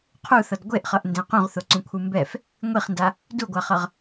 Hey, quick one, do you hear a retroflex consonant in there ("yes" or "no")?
no